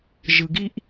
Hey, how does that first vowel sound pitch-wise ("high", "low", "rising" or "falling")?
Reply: low